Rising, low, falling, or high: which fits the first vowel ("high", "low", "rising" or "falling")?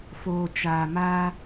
low